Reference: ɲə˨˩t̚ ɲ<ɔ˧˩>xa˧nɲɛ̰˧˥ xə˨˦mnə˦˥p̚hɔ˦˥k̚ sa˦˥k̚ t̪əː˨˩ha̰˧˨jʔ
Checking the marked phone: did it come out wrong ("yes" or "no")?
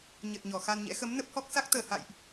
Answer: no